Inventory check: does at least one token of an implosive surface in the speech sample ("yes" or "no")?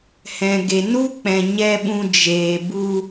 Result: yes